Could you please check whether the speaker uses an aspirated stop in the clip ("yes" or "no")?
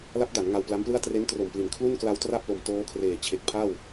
yes